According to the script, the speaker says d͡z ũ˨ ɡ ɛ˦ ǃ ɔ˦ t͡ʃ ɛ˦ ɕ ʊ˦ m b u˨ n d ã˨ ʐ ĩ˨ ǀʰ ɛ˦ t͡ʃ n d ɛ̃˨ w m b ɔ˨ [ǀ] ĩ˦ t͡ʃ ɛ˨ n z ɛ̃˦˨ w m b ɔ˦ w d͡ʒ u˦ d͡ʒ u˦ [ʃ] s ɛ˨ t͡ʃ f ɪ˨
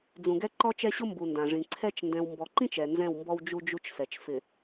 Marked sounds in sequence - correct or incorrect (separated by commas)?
incorrect, incorrect